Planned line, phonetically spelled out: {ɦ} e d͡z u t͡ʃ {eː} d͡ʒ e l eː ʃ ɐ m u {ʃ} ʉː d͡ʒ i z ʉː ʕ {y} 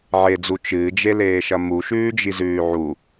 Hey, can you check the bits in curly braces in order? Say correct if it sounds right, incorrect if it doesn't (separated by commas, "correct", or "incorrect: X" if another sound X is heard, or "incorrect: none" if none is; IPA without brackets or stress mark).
incorrect: ʕ, incorrect: ɨː, correct, incorrect: u